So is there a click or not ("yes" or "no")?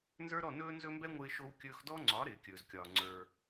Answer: yes